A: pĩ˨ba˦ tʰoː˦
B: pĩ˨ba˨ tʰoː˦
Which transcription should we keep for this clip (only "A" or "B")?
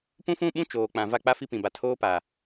B